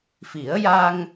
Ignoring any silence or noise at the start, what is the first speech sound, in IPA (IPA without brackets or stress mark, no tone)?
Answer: f